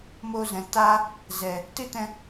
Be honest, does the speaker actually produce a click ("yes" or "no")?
no